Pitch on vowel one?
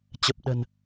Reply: low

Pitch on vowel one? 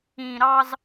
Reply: low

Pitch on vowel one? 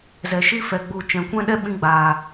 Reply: low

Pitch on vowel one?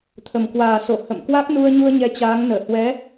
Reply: low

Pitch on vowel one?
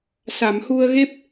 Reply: low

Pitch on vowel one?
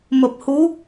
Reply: low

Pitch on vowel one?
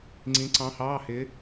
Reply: rising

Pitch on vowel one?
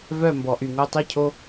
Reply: falling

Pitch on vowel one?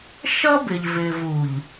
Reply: high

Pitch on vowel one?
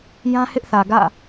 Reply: high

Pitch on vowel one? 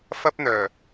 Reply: high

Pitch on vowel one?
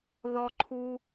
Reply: high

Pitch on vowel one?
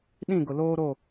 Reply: falling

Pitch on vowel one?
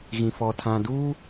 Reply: low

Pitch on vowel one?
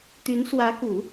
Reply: rising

